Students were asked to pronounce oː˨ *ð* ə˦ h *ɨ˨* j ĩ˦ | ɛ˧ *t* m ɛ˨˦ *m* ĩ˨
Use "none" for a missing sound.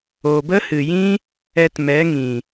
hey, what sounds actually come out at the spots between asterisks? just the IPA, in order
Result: b, ɨ˨, t, ŋ

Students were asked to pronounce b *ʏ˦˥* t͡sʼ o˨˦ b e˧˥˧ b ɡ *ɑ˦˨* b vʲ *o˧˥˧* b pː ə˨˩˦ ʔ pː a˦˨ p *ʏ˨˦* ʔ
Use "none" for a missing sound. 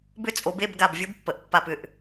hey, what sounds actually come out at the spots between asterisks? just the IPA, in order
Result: ʏ˦˥, a˦˨, o˦˥, ʏ˦˨

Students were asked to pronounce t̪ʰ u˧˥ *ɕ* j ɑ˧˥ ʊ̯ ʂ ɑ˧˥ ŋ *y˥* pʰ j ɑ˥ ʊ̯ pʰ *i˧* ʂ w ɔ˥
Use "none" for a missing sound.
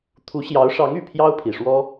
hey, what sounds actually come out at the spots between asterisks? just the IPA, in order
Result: ɕ, y˨˩, i˨˩

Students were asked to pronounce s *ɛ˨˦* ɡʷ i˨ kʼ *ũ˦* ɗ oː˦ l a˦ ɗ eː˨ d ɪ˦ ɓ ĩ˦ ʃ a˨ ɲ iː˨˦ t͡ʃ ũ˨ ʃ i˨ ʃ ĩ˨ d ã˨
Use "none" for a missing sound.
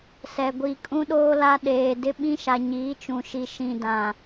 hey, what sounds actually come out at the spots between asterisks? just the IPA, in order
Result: ɛ˨, ũ˦

